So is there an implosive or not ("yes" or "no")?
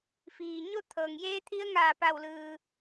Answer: no